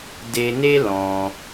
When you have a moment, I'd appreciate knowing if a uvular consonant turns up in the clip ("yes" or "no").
no